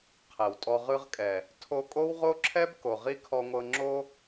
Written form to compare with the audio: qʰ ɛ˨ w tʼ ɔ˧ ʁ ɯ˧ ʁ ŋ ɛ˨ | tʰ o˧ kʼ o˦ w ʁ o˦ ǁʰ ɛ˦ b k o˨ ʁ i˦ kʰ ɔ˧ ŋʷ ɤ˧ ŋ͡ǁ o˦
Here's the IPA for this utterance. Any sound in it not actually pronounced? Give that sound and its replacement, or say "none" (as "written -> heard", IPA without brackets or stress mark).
ŋ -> kʼ